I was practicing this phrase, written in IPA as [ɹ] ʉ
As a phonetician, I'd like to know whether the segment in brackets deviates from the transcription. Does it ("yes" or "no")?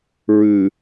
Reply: no